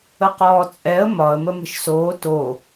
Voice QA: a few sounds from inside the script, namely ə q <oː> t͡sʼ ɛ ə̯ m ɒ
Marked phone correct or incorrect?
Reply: incorrect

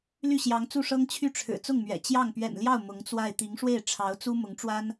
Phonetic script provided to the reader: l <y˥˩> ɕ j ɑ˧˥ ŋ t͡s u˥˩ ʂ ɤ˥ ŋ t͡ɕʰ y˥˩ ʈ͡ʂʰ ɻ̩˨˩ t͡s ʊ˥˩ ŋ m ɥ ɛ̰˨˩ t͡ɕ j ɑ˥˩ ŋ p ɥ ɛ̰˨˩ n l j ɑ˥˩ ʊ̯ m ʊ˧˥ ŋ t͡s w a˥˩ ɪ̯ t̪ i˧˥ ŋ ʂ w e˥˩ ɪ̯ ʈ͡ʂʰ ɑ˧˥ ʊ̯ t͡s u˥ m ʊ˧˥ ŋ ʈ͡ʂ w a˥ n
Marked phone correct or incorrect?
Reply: correct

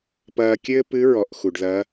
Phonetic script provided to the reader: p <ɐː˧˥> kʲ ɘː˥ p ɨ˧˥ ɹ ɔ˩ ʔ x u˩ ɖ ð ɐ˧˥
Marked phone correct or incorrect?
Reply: incorrect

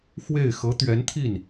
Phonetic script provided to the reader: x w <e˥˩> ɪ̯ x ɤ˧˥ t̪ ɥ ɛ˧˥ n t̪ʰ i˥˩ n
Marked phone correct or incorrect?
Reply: correct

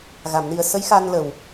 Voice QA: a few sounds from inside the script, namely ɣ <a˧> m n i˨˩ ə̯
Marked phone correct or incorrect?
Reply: incorrect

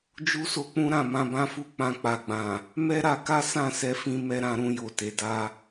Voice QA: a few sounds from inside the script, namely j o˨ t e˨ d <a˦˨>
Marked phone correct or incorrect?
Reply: incorrect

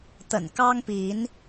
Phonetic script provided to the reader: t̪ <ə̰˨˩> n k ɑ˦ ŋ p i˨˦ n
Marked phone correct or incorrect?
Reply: correct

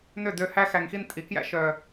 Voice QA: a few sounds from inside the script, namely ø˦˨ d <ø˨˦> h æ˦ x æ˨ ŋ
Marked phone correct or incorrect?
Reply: incorrect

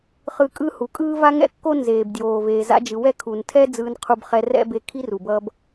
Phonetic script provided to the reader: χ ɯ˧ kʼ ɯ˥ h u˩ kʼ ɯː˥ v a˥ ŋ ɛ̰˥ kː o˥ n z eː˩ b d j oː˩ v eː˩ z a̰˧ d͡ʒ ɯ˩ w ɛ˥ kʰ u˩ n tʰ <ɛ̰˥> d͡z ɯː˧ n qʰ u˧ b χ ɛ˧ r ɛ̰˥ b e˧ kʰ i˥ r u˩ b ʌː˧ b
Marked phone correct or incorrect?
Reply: incorrect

